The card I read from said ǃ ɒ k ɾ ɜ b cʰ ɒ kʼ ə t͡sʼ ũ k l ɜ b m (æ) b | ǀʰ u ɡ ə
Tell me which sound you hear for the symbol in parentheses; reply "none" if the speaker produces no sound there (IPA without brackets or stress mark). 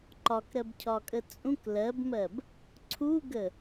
ɜ